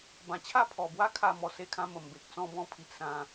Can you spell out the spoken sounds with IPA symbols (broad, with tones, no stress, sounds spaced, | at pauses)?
b ã˨˩ t͡ɕʰ a˥˧ pʰ ɔ˨˩ b w a˥˧ kʰ a˥˧ m ɔ˧ s e˧ kʰ ã˧ m ə˨˩ m b e˨ k̚ t͡s ɔ̃˦ b ɔ̃˦ pʰ i˨ ʔ s ã˧